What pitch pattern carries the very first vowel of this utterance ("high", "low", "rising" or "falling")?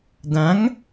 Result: rising